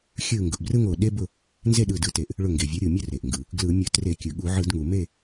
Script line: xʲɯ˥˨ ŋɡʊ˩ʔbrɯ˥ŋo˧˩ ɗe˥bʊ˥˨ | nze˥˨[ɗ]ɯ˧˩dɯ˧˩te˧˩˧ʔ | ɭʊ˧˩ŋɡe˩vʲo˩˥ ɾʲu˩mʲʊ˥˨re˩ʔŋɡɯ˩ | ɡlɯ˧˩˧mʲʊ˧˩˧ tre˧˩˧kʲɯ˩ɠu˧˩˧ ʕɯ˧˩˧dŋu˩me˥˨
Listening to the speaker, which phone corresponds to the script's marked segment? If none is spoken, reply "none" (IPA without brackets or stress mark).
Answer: ɗ